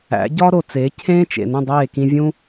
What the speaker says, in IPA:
æ̰˩˥ ɟ ɒː˥ ɾ o˩ t͡s eː˩˥ cʰ ẽː˥ t͡ʃ ḛ˩ n ũ˥˩ dˤ eː˥˩ k ĩ˧ vʲ ũ˥

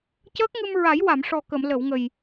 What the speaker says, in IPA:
c əː˦˥ k̚ ŋ ɨ˧ m ɹ a˨˩˦ j w a˨˩˨ m ʂ ɔ˨˩ k ə˨˩˨ m l ə˨˩˨ w ŋ ə˨˩ j

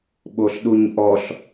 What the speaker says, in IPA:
ɓ o ɬ ɗ u ɲ ʔ ɔ ɬ

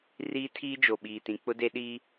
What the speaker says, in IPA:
r iː˦ tʰ iː˦ d͡ʒ o˨ ɓ iː˨ t ĩ˨ k͡p ʊ˦ d e˦ ɗ iː˦

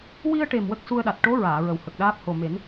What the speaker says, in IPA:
w i˧ ə̯ ʈ e˨˩ m w ə˦˥ k̚ s u˧ ə̯ ɗ a˨˩ t̚ ʈ o˧˥ ɹ aː˨˩˨ ɹ ə˨˩ w h ə˨˩ k̚ ɗ aː˦˥ p̚ h o˨˩ m e˨˩˦ n

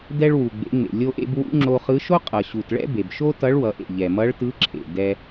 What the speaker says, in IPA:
d ɛ˧ ɭ w u˩ ɡ͡b ḛ˩˧ ŋ͡m ḛ˩ lʲ o˧ ʔ ḛ˧ b w ṵ˧˥ ŋ͡ǁ o˧ χ ɯ˧˥ ʃ o˥ qʼ ʌ˩ ɕ u˩ t ɭ ɛ̰˥ b e˩ b ʃ o˥ t ʌ˧˥ ɭ w ʌ˩˧ ʔ ḛ˩ ʎ ɛ˩ m ʌ˧˥ ɭ t ɯ˧˥ ǁʰ ḛ˩ d ɛ˧

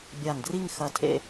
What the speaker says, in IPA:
bʲ a˧˩ ŋ d r i˥˧ ŋ x ɐ˧˩ tʰ ḛ˥˧

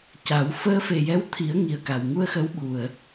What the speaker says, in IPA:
c a˨˩˦ w f əː˧ f e˨˩ j ɛ˧˥ w t̪ʰ i˨˩˦ ə̯ ŋ i˨˩ ə̯ k a˨˩ w ŋ u˧ ə̯ x ə˧˥ w ɓ u˨˩ ə̯

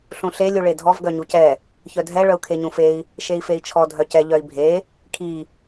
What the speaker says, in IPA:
ɬ ũ ɬ e lʲ u ɭ e dʱ ɔ v ɡ œ ɲ u c ɛ | ç œ dʱ ɛ ɭ œ u̯ kʰ e ɲ ũ f e i̯ | ʃ e i̯ f e i̯ t͡ʃʰ ɔ dʱ œ c ɛ ʎ œ i̯ bʱ e | kʰ i

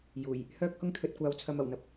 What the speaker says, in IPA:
j uː˨˩ j | h œː˥ k̚ h ʊ˥ ŋ t̪ʰ ɵ˨ t̚ kʷ aː˧ w t͡sʰ ɐ˧ m ɐ˨˩ w n̪ ɐ˨ p̚

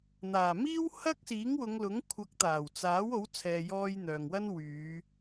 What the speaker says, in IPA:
n̪ aː˨˩ m iː˥ w h ɐ˥ k̚ s iː˨˥ ŋ w ʊ˨˧ ŋ l ʊ˨˥ ŋ kʷʰ ɐ˨˥ k̚ t̪ aː˨˩ w t͡s aː˨˥ w o˨˥ w t͡sʰ ɛː˨ j ɔː˧ j n̪ œː˨ ŋ w ɐ˥ n w yː˨˧

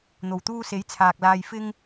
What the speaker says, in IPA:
n̪ o˨˩ w t̪ uː˧ s e˨˥ j t͡sʰ aː˨ k̚ l aː˧ j f ɪ˥ ŋ

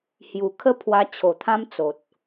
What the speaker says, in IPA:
h j u˨˩ kʰ ə˥˧ pʰ w a˧ t͡ɕʰ o˨˩ t̪ʰ ã˦ m t͡s o˨ t̚

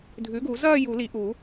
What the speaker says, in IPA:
dʱ ʉ˩˥ ɡ u˨˩˦ z ɐː˥˧ j u˨˩˦ l i˨˩˦ ʔ u˨˩˦

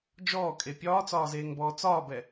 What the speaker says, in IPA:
d͡ʒ ɔː kʼ e pʲ ɒː t͡s ɒː z eː ŋ b ɔː t͡s ɒː b ɛ

